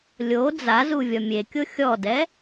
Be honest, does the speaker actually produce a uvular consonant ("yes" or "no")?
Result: no